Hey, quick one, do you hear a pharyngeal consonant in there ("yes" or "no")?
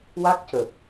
no